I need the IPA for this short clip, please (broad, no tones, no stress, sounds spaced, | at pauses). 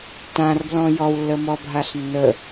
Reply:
t ã r b l ɔ̃ j ɔ w lː ə m ɔ bʱ a ɬ nː ə